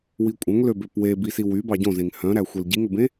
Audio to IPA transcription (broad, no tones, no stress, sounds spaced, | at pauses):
w i kʷʼ œ̃ ŋ l ø b ø p w e b i s i w y b ɑ ɟ õ z ẽ ŋ h œ̃ ɾ æ xʷ e l ɟ i ŋ ɵ b ẽ